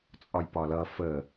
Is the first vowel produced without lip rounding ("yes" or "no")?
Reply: no